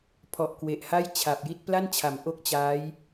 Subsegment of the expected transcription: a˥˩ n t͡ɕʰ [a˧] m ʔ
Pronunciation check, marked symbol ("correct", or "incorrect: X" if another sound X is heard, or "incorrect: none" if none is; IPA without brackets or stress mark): incorrect: a˩˦